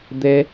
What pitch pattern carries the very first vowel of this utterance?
high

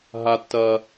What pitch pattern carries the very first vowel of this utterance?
high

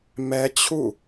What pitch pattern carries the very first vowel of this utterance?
high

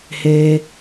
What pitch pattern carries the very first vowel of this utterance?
high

